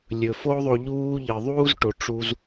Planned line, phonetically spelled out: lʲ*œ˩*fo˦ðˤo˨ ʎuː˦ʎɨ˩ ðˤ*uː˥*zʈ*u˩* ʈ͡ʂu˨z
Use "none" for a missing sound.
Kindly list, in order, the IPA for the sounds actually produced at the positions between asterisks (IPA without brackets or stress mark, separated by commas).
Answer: ɵ˩, uː˥, o˩